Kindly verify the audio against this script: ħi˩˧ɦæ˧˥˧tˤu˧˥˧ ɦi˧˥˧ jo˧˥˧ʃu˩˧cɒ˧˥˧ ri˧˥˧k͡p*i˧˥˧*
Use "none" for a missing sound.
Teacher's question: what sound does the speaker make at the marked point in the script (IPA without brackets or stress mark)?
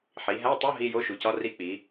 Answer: i˩˧